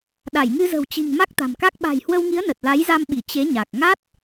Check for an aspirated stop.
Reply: absent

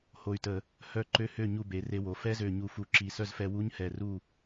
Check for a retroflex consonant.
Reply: absent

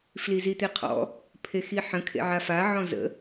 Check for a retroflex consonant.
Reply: absent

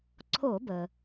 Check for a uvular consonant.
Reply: absent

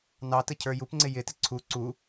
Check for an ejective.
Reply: absent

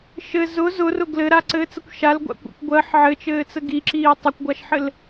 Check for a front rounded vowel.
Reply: absent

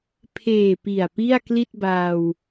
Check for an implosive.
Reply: absent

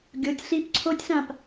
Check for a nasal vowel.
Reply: present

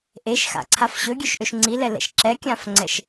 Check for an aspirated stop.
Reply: present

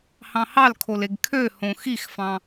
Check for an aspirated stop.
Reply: present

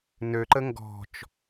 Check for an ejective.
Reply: absent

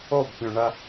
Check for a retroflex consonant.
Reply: present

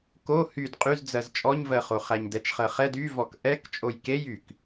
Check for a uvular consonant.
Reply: present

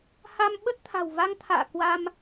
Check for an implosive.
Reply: present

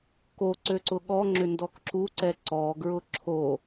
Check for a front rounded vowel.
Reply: present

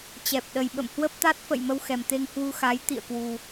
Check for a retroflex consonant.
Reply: absent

